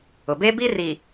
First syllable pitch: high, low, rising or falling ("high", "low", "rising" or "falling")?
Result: low